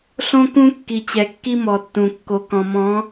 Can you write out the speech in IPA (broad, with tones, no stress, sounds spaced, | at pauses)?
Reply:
ɬ õ˦ k ũ˦ kː i˨ t͡ɕ ɛ˨ kː i˦ m ɔ˨ tː ũ˨ kː o˨ k ɔ̃˨ m ɔ̃˨˦